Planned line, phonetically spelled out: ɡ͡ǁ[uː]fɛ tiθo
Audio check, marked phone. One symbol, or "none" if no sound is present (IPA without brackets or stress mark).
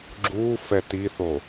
uː